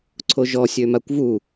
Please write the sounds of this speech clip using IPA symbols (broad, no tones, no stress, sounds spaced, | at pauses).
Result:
ǀʰ o ʒ ɔ sʲ ø m a kʷ v u